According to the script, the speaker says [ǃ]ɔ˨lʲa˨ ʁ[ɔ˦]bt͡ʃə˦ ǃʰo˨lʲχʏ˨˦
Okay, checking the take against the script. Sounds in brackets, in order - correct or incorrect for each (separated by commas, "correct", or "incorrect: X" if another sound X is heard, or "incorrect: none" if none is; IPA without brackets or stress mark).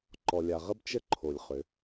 correct, incorrect: ə˦